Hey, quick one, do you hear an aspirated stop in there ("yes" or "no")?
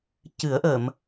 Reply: no